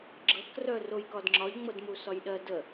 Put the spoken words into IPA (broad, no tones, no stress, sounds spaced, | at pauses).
ɡ͡ǁ ɤ k r œ r o j k ɒ d ŋ͡ǁ ɒ ʎ ŋ͡m ɤ d m u s ɒ j ɗ ɜ d ə